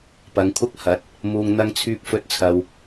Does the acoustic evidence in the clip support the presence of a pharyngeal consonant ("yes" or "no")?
no